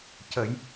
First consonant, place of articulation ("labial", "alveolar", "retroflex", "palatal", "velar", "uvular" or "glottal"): palatal